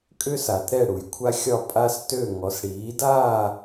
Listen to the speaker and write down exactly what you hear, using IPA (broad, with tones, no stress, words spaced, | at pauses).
kʼʏ˥sa˨t ɾɛ˥˧ɽu˨jkʷʰa˥xʲɒ˥˧ pʼa˥stø˥˧ ŋɔ˨˦sɽiː˨˦daː˥˧